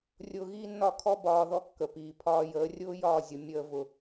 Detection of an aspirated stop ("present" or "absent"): present